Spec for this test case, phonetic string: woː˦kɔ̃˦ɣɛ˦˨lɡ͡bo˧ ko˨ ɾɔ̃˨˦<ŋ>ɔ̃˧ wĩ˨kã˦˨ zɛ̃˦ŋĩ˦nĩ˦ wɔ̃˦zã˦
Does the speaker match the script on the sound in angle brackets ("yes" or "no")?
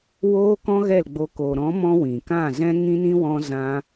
no